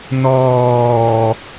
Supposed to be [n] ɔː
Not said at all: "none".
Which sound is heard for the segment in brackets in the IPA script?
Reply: n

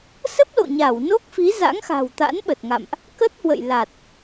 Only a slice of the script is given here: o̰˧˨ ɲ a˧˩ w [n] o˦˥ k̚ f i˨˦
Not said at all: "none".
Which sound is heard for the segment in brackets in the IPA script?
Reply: n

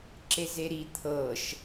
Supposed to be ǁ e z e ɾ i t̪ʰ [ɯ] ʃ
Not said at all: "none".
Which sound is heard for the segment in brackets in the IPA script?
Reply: ɤ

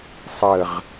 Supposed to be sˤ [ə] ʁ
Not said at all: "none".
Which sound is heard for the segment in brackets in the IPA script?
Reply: ə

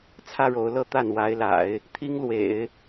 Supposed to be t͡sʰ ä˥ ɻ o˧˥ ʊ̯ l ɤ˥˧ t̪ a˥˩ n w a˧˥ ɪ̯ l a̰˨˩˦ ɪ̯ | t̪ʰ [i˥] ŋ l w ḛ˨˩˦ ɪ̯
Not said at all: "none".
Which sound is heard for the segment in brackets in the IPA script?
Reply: i˥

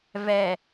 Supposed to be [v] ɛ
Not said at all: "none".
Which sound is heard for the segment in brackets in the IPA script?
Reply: v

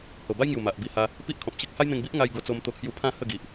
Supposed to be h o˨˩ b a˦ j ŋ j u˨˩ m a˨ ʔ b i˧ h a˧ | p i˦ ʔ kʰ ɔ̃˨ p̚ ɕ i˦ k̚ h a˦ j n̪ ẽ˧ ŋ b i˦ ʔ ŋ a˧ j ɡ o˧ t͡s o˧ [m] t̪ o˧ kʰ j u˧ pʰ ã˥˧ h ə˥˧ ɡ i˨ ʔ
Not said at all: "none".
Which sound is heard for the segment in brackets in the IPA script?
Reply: m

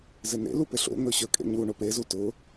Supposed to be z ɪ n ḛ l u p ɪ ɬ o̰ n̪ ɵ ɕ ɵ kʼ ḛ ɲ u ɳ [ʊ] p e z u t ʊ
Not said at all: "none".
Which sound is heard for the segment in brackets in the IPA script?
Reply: ʊ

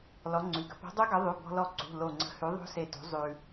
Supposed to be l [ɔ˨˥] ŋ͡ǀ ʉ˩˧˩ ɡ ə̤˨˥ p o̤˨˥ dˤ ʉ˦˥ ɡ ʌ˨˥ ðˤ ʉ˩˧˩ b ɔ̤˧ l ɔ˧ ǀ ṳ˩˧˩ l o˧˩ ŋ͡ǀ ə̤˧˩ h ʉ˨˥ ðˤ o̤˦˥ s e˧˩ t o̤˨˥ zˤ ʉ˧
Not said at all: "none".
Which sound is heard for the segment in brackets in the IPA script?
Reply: ɔ˨˥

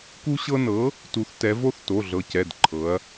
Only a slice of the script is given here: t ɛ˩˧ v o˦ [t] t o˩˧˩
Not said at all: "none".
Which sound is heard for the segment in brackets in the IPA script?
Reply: θ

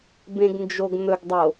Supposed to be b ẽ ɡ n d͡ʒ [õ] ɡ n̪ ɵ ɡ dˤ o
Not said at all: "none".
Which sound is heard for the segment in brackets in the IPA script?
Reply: o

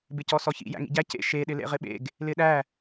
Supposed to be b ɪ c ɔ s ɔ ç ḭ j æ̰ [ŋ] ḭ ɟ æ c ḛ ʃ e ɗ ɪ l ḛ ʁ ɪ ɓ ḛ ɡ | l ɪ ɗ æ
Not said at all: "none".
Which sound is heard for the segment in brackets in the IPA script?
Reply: ŋ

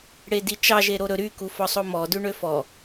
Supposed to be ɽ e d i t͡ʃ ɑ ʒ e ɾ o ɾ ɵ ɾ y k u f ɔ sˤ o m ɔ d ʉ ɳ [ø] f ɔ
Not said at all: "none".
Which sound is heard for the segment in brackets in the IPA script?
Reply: ø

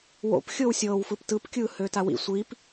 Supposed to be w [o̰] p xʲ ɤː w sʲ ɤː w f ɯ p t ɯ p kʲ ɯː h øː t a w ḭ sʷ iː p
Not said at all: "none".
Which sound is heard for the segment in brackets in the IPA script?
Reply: o̰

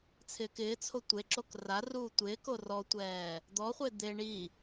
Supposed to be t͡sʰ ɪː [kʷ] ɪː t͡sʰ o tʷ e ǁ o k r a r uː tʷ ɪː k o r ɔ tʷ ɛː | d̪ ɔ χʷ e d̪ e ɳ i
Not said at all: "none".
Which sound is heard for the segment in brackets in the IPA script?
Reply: k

